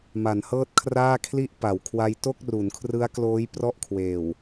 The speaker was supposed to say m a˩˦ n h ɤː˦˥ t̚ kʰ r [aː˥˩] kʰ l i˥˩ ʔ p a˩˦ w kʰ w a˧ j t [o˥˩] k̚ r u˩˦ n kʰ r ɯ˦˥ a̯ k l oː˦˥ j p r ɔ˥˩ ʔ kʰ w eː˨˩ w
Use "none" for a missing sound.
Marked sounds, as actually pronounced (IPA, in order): aː˥˩, o˥˩

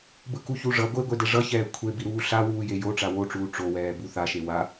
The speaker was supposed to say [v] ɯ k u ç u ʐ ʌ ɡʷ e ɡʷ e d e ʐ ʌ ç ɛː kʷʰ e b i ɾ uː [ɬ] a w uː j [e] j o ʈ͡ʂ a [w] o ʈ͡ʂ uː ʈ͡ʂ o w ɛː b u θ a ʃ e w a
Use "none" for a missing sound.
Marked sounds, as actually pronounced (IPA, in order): b, ɬ, e, w

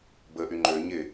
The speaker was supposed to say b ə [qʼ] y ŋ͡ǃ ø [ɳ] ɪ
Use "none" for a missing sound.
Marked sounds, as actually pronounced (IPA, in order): ʔ, ɲ

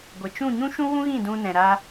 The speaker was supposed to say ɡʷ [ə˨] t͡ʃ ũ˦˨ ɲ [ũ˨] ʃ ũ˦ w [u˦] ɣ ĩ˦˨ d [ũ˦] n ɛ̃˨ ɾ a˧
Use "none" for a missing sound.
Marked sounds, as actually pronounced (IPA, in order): ə˨, ũ˦, ũ˦, ũ˧

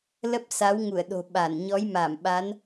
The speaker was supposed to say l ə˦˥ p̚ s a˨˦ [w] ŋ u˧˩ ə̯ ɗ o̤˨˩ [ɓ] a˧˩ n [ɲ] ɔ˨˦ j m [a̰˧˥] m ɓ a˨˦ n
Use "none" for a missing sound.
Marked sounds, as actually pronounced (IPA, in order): w, ɓ, ɲ, a˧˩

